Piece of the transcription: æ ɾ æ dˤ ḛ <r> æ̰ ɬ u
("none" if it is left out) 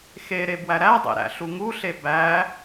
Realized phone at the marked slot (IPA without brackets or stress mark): ɾ